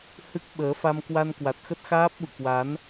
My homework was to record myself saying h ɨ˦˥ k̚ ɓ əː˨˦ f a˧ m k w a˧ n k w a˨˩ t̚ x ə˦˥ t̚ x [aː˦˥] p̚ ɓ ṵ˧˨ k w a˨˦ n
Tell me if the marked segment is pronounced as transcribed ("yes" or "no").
yes